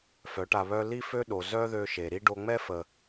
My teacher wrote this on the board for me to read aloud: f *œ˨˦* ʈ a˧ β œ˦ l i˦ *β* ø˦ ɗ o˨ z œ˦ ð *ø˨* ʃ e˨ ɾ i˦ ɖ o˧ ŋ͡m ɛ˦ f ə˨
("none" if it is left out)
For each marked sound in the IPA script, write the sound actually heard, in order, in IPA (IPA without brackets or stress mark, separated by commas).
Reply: œ˨˦, f, ø˧